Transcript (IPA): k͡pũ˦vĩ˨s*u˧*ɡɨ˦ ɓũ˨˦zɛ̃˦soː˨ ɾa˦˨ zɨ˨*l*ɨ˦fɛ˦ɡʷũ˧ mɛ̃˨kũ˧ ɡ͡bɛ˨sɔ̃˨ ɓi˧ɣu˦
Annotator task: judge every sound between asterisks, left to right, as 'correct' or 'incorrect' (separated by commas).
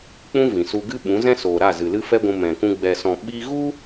correct, correct